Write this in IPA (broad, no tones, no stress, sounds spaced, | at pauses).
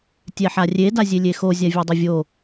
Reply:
tʲ ɛ ħ a rʲ e d a zʲ e lʲ e x o zʲ a vʲ ɔ dˤ ʊ vʲ o